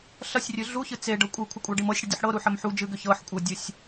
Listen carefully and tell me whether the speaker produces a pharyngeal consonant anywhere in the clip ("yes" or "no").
yes